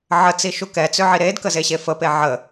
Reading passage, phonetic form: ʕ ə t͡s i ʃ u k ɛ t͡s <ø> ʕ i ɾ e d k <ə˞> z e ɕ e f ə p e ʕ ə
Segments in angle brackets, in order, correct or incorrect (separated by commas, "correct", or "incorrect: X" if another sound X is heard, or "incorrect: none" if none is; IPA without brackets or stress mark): correct, incorrect: ə